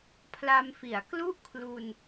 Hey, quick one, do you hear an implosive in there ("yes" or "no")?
no